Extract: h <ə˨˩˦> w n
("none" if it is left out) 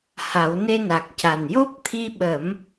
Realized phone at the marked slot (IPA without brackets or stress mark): a˨˩˦